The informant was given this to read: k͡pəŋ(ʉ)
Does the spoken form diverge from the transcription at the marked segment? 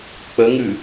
no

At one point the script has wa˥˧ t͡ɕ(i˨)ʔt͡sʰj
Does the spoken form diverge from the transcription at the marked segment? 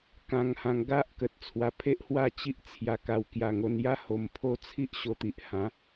yes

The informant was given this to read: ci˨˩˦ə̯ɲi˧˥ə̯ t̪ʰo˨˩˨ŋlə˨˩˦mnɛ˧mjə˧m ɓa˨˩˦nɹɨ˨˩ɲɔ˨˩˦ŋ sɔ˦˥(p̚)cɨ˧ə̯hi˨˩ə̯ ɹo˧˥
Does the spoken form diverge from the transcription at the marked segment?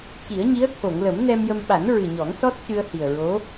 yes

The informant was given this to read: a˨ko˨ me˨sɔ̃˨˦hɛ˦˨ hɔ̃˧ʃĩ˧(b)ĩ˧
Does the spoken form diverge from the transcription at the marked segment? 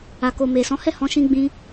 yes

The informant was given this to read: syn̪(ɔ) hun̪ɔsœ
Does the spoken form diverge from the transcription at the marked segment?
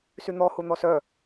no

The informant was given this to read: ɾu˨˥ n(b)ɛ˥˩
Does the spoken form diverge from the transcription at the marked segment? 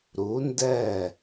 yes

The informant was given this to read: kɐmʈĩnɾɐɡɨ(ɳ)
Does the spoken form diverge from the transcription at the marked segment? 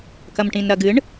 no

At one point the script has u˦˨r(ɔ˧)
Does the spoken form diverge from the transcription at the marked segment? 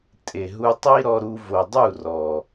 yes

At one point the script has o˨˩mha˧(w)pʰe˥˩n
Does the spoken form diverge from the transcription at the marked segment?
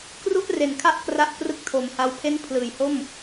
no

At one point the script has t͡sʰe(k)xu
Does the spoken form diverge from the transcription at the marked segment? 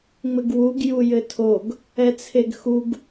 yes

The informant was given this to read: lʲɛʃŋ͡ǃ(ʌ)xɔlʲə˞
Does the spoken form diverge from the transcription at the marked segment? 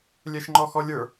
yes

